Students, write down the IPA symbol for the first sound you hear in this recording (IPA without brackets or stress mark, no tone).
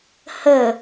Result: h